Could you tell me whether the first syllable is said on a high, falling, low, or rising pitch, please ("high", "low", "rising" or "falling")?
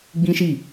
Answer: high